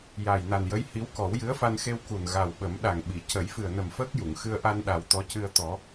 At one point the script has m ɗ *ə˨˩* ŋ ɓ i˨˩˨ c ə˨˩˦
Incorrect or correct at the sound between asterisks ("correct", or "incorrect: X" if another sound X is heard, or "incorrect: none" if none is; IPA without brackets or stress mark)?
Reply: incorrect: a˨˩